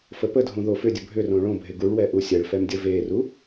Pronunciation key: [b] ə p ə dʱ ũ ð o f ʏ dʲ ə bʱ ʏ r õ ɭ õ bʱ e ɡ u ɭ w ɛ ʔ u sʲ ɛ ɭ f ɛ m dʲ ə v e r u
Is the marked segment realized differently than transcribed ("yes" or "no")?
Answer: yes